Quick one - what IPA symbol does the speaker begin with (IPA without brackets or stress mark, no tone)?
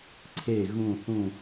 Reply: ǀʰ